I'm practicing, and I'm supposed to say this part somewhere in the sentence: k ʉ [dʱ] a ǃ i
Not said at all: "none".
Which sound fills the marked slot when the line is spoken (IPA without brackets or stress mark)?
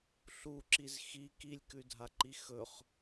dʱ